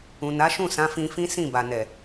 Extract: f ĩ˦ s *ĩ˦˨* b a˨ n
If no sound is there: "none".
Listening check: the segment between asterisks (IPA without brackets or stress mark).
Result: ĩ˦˨